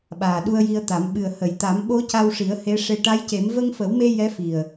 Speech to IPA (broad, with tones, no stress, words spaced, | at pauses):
ɓaː˨˩ɗu˧ə̯ji˧ə̯t̪a˨˩˦m ɓɨ˨˩ə̯hə˨˩˨jt̪a˨˩˦m ɓo˧˥ca˧wʂi˨˩˦ə̯ he˧˥ ʂe˧ ʈa˧˥jce˨˩˦m və˧ŋfə˨˩˦wme˧ jɛ˧˥fi˨˩ə̯